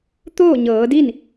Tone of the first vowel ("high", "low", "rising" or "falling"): falling